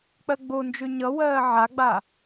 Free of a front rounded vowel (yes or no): no